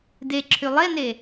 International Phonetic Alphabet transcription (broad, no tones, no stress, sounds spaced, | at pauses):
d e ǁʰ y lˠ e n e